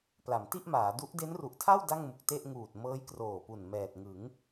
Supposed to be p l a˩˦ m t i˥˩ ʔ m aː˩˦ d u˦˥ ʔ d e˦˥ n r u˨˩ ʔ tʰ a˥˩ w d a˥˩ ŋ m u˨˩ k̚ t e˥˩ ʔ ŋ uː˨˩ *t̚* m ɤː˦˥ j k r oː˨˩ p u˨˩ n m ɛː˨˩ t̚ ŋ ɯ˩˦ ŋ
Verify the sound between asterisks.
correct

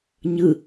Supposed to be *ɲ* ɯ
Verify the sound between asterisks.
correct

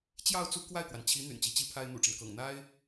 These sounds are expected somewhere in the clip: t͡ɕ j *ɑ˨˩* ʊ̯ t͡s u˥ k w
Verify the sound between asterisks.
incorrect: ɑ˥˩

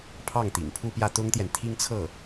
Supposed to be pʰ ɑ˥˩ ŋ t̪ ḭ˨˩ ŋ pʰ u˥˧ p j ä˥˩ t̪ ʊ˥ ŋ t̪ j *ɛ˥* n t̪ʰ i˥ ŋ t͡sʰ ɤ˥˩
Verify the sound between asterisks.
incorrect: ɛ˨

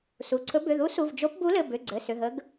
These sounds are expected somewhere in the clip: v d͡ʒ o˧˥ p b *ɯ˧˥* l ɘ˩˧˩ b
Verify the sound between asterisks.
incorrect: u˧˥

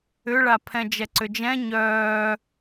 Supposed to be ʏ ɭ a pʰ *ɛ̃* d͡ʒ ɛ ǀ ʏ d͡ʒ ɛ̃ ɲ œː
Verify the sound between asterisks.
correct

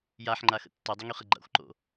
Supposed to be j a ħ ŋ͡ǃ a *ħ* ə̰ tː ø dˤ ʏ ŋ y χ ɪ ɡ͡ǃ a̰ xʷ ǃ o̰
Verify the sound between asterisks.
incorrect: x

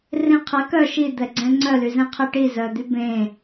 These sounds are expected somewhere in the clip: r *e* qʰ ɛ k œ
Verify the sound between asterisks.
incorrect: ẽ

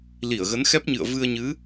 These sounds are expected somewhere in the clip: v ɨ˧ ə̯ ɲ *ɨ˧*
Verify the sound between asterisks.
incorrect: ɨ˨˦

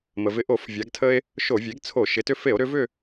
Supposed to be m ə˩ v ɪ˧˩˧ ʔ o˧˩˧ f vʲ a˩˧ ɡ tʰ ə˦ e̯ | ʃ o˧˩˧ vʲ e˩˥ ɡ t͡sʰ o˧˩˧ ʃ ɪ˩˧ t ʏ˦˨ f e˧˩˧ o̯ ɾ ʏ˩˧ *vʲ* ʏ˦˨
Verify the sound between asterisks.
incorrect: v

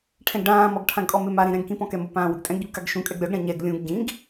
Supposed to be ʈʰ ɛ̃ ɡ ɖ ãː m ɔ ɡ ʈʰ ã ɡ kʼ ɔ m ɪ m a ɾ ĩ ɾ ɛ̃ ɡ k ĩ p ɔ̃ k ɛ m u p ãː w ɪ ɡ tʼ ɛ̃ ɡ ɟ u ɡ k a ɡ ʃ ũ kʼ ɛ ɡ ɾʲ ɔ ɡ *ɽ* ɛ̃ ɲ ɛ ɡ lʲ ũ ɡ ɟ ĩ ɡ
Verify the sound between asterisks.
correct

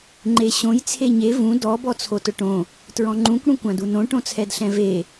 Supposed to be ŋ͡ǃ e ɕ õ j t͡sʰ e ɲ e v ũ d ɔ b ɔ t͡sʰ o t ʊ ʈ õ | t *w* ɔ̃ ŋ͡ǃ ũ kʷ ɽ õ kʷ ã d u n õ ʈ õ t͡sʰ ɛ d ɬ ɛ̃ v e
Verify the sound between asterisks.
incorrect: ɹ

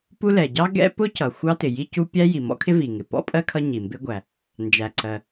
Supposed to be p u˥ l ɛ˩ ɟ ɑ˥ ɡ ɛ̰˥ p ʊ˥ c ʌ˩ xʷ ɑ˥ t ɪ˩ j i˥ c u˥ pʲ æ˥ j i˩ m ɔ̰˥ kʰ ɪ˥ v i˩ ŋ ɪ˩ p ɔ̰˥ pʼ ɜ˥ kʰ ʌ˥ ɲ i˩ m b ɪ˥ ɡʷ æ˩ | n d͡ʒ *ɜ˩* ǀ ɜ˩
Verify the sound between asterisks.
incorrect: æ˩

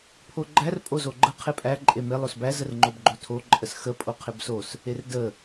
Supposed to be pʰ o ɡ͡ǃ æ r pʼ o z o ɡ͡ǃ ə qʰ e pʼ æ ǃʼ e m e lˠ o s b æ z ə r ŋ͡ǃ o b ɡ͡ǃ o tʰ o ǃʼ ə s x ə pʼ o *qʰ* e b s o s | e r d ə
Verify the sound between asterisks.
correct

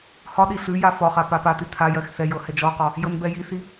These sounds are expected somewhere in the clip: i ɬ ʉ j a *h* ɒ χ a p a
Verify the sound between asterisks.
incorrect: f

